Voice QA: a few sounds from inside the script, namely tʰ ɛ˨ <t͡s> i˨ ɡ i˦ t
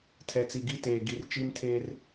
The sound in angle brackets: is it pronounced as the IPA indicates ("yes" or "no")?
yes